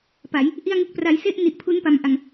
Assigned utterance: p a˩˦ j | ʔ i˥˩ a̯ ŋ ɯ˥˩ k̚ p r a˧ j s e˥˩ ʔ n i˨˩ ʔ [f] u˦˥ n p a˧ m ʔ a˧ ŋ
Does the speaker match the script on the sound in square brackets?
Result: no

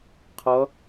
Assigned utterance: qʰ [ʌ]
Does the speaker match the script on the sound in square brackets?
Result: yes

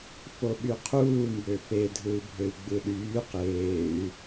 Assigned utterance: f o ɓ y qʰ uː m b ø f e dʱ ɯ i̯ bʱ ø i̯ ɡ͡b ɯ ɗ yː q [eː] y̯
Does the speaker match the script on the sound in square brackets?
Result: yes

